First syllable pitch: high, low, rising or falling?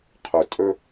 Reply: low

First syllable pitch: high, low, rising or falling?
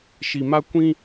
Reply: low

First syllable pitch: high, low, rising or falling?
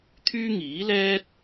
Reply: high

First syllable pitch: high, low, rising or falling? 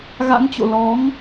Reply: rising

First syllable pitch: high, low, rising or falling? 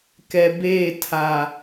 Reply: low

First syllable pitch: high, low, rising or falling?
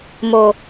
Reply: low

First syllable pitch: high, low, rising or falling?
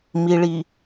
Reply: low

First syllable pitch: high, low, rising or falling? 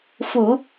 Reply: low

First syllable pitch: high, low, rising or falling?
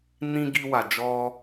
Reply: high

